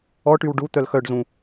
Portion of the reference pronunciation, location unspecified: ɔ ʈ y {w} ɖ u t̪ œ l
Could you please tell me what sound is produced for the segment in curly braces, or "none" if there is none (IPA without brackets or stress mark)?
w